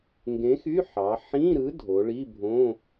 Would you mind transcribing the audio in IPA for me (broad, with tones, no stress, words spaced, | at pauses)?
ŋɡẽ˨˥xy˧˥˧ħɑ˩˧ ħĩ˧˥˧ɾɯ˨˥ dʱo˩˧ɭi˧˥˧bʱõ˧˥˧